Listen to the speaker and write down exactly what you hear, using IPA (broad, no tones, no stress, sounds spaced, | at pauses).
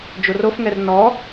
d͡ʒ o r o f ŋ ɛ r n ɔ